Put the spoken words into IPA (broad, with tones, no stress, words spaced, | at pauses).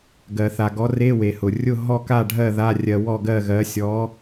ɡɜ˧θa˧ ɡɔ˨˥ re˧˥˧we˩hʊ˩ rʲʊ˥˨ ɦɔ˥˨ka˥˨ɖʱɜ˥˨ ða˧˥˧ rʲɜ˧wɔ˥˨ɡɜ˥˨ɣɜ˨˥ sʲɔ˨˥